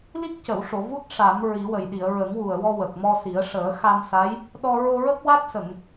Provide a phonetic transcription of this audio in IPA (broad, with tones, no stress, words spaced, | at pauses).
li˦˥k̚cə˨˩˨wʂo˨˩˨ vu˦˥t̚ ʂa˨˩˦m ɹi˨˩˦wə˨˩j ɗi˨˩˨ə̯ ɹə˨˩˦ŋwu˨˩ə̯wɔ˧ wə˨˩k̚mɔ˧si˨˩˦ə̯ ʂəː˨˩˦xa˧msa˧˥j | ɗɔ˧ ɹo˧ɹə˦˥k̚wa˦˥t̚ sə˨˩˨ŋ